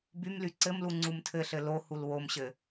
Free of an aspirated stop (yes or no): no